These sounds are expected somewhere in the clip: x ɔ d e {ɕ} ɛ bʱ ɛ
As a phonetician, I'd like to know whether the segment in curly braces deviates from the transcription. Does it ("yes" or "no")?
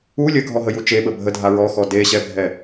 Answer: no